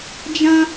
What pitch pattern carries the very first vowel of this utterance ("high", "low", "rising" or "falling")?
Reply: high